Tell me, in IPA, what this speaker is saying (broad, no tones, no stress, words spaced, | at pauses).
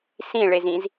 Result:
sĩɭezĩz